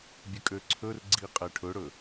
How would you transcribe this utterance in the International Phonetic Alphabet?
bʲ ə kʼ ø ǀʰ ɵ r ɡ͡ǀ i qʼ ɛ ʈʰ ɵ ɽ ɵ

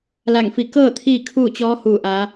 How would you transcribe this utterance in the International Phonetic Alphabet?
l a˧˩ ŋ f i˧˩ k ɤː˥˨ t̪ʰ iː˥˨ kʰ uː˥˨ t͡ɕ ɔː˧˥ h uː˧˩ ʔ aː˩˧

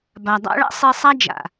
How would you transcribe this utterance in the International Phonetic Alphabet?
b a˩ dˤ a̰˧ ɭ a̰˥ sˤ e˧ sˤ a˥ d͡ʒ a̰˩

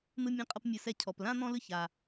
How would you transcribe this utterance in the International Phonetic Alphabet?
n̪ ɯ˧ mʲ ã˧ qʼ ʌ˧ p mʲ ɯ˩ s ɛ˧ cʰ ɔ˩ p l ã˥ n̪ ɔ̃˥ l ɯ˥ ç a˩

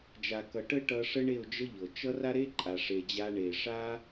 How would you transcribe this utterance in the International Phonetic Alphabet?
d͡ʒ a˨ k ʌ˨ ʈ ə˦ ʈ ʌ˧ ʂ ə˦ ɳ e˦˨ ʊ̯ d͡ʒ ə˦ ʎ ɤ˨ t͡ʃ ʌ˦ r a˦ ɾ e˦ ǃʼ a˨ ʂ e˨ d͡ʑ a˧ ɳ e˨ ʂ a˦

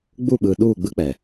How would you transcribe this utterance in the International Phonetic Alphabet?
ɡ͡b u˦˨ ɓ ɯː˨ ɗ uː˦˨ ɡ͡b ɯ˦ k͡p ɛ˨

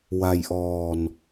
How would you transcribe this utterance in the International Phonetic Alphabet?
w a˧ j ʔ ɔː˧ n

